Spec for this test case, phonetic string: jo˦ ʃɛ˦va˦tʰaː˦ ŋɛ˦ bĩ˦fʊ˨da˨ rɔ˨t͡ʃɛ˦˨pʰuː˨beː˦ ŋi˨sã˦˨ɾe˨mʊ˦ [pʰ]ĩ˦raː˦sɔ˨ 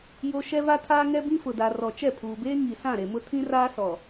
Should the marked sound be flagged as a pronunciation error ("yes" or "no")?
yes